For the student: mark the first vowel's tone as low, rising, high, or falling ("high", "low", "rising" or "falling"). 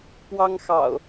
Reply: high